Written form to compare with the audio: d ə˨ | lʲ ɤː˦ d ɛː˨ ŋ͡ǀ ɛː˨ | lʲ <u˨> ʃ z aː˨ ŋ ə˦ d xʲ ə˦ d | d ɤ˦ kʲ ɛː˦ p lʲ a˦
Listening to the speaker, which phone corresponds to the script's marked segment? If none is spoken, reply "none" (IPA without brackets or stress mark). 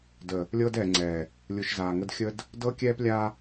u˨